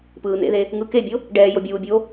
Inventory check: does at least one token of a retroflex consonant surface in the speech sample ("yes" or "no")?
yes